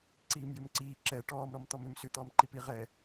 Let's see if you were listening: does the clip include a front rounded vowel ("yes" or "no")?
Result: yes